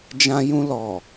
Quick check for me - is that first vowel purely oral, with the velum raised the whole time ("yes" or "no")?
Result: no